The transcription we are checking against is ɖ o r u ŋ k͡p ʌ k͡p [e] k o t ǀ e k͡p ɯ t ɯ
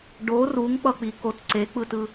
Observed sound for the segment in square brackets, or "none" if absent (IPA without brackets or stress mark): i